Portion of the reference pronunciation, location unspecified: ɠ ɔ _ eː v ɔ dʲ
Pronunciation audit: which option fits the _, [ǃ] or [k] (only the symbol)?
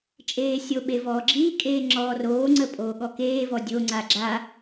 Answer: k